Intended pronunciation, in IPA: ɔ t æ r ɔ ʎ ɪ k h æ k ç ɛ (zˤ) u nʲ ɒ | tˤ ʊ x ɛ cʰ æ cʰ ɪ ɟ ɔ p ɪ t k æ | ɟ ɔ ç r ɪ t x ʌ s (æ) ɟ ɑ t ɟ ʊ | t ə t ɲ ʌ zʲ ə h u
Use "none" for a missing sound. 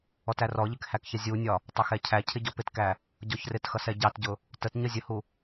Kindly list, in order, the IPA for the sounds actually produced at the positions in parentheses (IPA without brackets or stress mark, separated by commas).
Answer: zʲ, ɛ